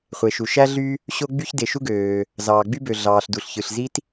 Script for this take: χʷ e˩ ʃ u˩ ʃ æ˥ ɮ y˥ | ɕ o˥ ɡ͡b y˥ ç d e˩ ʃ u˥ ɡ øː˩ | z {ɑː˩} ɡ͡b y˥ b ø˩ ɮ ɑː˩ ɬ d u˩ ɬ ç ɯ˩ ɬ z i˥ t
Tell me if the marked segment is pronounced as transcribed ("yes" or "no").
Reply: yes